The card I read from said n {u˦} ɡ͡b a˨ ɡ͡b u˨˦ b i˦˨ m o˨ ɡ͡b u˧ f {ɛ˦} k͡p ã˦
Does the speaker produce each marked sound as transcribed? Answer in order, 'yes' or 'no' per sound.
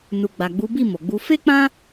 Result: no, no

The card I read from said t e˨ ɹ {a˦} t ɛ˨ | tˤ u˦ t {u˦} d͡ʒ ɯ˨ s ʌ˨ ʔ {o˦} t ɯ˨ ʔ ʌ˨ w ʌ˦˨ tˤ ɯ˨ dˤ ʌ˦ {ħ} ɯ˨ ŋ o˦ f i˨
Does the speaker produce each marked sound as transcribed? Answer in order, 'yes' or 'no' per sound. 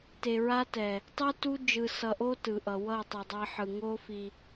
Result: yes, yes, yes, yes

